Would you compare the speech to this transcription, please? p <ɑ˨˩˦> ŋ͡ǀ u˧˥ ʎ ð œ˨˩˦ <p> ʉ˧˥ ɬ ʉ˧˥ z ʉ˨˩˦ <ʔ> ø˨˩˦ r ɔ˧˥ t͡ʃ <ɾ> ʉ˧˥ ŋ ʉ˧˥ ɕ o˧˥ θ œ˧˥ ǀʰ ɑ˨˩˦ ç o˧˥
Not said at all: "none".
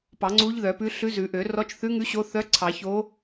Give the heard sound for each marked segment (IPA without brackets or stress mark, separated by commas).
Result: ɑ˨˩˦, p, ʔ, θ